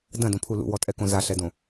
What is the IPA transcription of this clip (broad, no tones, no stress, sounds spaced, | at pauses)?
d ɐ̃ d õ pʰ u l ṵ w ɔ tʼ ɛ k õ z a ɬ ɛ d õ